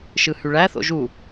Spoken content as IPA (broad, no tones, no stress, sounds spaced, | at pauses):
ʃ ɯ h y ɭ æ θ o̰ ʒ u